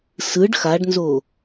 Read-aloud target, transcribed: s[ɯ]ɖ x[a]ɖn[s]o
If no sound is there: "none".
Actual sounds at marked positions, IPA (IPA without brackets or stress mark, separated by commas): ɯ, a, z